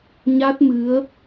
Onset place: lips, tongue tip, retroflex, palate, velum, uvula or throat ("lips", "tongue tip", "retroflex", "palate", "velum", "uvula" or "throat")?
palate